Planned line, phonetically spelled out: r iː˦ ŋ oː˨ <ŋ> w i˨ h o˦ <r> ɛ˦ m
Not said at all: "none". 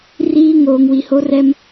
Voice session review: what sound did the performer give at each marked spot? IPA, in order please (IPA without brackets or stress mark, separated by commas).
ŋ, r